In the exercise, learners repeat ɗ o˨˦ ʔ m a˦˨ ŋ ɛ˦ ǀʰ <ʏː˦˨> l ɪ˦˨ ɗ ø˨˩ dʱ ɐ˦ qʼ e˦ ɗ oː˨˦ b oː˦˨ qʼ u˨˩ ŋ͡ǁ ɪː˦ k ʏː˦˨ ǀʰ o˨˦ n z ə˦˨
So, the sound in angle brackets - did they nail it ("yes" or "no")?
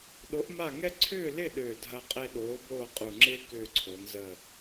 yes